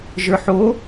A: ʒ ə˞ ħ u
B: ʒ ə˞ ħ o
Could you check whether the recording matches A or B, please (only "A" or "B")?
B